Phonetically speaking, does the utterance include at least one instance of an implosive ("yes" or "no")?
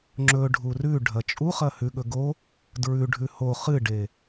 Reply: yes